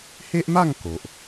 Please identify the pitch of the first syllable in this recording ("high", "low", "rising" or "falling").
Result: high